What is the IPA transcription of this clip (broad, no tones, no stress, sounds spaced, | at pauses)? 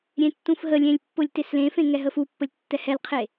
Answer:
ɾʲ ẽ tː ũ f ɦ ə lʲ ẽ lʲ pː ʊ lʲ t e s l ẽ f ẽ ŋ ɛ ɦ ə f u pː ə lʲ tː ɛ h ɛ l qʰ e